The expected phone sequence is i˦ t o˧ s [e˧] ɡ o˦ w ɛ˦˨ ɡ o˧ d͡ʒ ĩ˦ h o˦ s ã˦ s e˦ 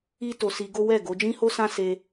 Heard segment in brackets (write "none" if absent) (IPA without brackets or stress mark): i˧